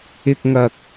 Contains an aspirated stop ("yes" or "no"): no